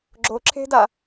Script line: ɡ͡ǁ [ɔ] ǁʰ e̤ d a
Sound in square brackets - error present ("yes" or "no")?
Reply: yes